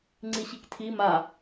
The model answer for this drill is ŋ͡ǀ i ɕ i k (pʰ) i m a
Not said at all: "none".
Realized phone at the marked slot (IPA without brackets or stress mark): tʰ